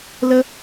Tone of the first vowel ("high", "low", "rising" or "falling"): high